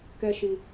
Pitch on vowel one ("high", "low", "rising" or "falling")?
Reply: high